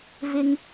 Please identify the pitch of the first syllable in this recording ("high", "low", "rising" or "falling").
high